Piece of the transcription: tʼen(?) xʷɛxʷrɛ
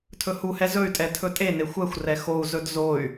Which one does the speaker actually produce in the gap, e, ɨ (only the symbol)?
e